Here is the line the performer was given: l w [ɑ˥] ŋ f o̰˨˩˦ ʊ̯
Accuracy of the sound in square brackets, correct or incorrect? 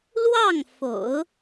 incorrect